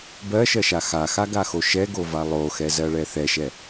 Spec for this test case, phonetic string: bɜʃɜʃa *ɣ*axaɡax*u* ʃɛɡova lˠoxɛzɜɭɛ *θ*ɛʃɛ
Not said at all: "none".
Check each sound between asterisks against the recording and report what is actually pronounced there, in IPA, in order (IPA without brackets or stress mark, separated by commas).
x, o, θ